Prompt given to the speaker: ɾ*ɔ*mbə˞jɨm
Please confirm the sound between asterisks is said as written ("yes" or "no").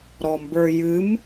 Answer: yes